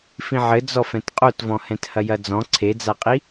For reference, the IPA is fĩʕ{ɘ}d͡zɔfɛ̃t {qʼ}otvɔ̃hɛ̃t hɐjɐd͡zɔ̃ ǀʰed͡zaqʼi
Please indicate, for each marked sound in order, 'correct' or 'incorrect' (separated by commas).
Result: correct, correct